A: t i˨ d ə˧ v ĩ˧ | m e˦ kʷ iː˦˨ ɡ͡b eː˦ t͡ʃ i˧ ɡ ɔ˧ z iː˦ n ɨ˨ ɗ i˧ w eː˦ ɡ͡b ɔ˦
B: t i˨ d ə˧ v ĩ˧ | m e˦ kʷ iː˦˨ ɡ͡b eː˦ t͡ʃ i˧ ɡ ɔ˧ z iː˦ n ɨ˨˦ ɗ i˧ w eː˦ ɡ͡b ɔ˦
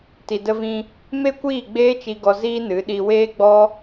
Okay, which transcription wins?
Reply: B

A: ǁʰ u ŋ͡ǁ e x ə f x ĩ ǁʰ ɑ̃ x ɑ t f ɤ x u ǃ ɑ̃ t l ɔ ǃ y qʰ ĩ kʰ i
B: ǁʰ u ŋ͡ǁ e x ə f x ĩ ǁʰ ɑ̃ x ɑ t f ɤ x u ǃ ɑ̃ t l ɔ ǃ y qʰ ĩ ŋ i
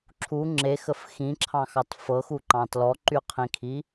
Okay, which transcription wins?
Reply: A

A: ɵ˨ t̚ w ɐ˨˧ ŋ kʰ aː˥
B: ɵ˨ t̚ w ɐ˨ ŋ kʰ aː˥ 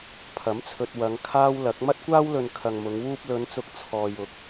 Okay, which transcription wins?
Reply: A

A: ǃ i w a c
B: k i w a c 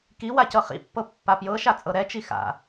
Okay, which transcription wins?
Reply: B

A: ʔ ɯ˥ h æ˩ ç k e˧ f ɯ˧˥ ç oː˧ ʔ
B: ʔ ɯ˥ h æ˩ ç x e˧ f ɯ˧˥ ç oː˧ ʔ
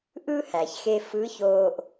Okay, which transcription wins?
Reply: B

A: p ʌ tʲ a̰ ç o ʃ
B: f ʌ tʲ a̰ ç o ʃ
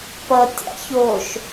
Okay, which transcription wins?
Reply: A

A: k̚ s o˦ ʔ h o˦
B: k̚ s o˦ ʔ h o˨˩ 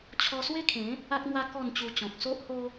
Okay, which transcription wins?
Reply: A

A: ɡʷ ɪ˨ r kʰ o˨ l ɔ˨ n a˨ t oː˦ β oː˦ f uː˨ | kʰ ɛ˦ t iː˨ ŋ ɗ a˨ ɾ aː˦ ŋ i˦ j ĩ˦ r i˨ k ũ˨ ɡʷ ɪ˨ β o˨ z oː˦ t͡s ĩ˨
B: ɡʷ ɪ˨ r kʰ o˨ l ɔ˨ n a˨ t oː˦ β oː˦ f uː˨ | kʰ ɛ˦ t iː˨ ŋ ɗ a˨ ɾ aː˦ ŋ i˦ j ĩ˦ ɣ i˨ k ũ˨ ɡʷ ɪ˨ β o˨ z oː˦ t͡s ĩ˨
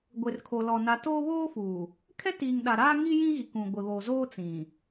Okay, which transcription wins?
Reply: B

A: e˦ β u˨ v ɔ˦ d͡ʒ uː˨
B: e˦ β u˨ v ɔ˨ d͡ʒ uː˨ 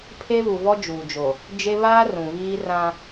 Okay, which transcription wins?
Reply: A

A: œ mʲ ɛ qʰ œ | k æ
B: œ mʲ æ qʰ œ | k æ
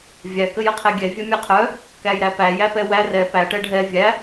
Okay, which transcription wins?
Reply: A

